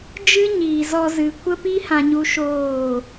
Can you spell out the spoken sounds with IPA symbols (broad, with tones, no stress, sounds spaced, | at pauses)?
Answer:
d͡ʒ ɨ˦ ɲ iː˨ z ɔ˧ z ɨ˨ kʷ ə˦ p i˦ h ã˧ ɲ u˧ ʃ oː˦˨